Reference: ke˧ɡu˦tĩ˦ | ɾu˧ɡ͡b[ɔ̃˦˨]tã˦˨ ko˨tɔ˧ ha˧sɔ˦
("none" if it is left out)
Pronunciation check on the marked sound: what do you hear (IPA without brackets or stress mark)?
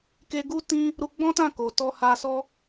ɔ̃˦